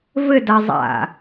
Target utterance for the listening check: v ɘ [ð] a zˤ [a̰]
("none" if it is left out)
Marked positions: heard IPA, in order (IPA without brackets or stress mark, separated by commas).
d, a̰